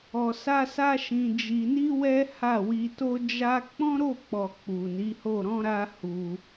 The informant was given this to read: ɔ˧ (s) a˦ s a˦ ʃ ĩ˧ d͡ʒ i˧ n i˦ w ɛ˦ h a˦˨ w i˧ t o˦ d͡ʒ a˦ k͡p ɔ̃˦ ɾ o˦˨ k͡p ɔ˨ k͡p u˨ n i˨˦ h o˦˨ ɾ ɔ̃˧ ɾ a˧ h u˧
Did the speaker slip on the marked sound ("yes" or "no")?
no